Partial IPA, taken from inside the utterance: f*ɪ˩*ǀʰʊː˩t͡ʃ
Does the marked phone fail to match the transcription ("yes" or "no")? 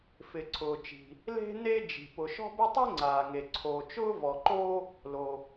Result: no